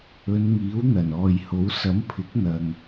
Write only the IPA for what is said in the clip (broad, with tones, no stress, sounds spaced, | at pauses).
ɵ˨˧ n ŋ iː˨˥ w n̪ ɐ˨˩ n ɔː˨ j h o˨˥ w s ɐ˨˥ m pʰ ɪ˨˥ k̚ n̪ ɐ˨ ŋ